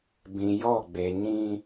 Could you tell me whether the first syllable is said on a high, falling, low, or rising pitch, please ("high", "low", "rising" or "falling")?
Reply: low